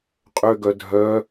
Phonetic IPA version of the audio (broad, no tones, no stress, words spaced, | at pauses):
qʼøɡœ dʱœ